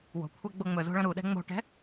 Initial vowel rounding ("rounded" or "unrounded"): rounded